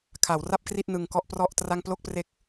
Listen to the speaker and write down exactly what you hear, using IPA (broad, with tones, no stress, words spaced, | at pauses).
kʰa˩˦wra˥˩p̚kri˥˩t̚ nɯ˧ŋkɔ˥˩ʔprɔ˥˩ʔtra˥˩ŋ plo˥˩k̚pre˦˥k̚